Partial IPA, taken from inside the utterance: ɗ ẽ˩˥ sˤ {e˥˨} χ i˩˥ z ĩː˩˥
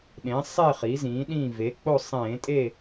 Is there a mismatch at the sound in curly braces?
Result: no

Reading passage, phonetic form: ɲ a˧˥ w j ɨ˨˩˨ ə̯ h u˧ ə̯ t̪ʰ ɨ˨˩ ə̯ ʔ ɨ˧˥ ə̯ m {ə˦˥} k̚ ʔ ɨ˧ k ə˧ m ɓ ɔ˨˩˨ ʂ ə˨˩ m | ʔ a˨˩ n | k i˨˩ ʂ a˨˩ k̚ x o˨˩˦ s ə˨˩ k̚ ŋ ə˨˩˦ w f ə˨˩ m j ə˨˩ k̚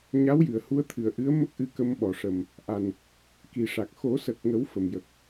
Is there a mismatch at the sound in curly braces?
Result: no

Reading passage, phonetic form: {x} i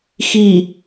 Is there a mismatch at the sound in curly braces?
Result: no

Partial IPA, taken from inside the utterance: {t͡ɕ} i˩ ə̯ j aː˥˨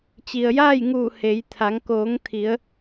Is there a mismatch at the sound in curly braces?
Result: no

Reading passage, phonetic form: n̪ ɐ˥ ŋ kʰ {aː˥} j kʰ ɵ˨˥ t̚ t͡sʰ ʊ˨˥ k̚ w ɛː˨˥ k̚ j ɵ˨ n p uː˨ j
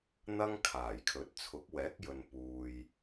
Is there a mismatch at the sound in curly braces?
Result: yes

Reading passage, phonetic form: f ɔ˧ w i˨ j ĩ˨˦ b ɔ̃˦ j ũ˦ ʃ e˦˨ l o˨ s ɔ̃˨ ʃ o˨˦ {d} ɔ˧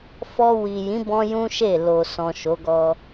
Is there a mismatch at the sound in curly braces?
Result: yes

